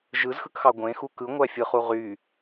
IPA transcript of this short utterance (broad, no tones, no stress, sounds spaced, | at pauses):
ʒ ɯ z x ɯ k x ɑ ɡʷ ẽ x u k ɯ ŋʷ æ fʲ ɯ χ u ʁ y